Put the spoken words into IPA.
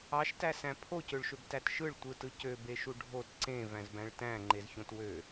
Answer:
ɑ ʃ t æ s æ̃ pʰ o c ø ɭ ʃ ø b t æ t ʃ ɯ ɭ tʷ ɯ t ɯ c ø b e ʃ u ɖʱ o t ǀ ẽ v æ̃ z b æ̃ ɭ t æ̃ ŋ͡ǃ e z ç õ t w ø

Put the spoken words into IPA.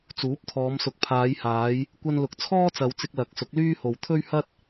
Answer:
t͡s uː˨˥ p̚ t̪ʰ ɔː˨˧ m s ʊ˨ k̚ pʰ aː˨˧ j h aː˨˧ j | kʷ ɐ˧ n l ʊ˨ k̚ t͡sʰ ɔː˥ t͡s ɐ˨˧ w t͡s ɪ˧ k̚ l ɐ˨˥ k̚ s ʊ˨˥ k̚ l yː˥ h o˨ w t̪ʰ ɵ˥ ɥ h ɐ˥ t̚

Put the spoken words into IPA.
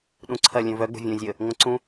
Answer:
ɗ ũ ǀʰ ɐ lʲ œ̃ v œ ɡ͡b o̤ vʲ õ zʲ ə | ŋ õ ǀ ũ

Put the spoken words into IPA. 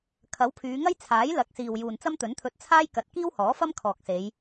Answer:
kʰ ɐ˨˥ w pʰ yː˨˧ ŋ ɐ˥ j t͡sʰ aː˨˥ j l ɐ˨˥ k̚ s iː˨ w j uː˨ n t͡s ɐ˥ m t̪ ɵ˨˥ n t̪ʰ ɵ˧ t̚ t͡sʰ aː˥ j k ɐ˨˥ t̚ k iː˥ w h ɔː˨˥ f ɐ˥ m kʰ ɔː˨ k̚ s e˨˧ j

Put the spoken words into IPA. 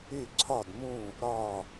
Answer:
y˧˩ ǀʰ ɒ˧˩ d m ũ˧˩ | ɾ ɒ˧˩

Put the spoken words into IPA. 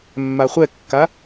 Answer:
mː a χʷ ɛ kː a

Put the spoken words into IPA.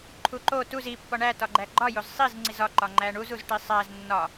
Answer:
ǃʰ u ǃ o t u z i pː ɒ ɳ æ t ɒ ɡ͡ǃ æ ɡ͡ǃ ɒ j o z sˤ i z ŋ͡ǀ i z ɒ ǃ ɒ ŋ͡ǃ æ ɳ u z u z ʈ i sˤ æ z nː ɒ

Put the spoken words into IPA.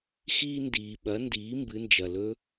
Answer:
x iː˧ n d iː˩ ɓ ɐ˩˧ n d iː˩˧ m b ɨ˩˧ n d͡ʒ ɐ˩ l ɵ˧˥

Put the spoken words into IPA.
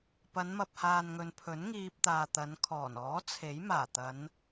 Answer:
p ɐ˨˧ n m ɐ˨ p̚ h aː˨ n ŋ ɵ˨ n pʰ ɵ˨˥ n ŋ iː˧ p̚ t̪ aː˨ t̪ ɐ˨˧ n kʰ ɔː˨˩ n ɔː˨˥ t͡sʰ e˨˥ j m aː˨˩ t̪ ɐ˨˧ n

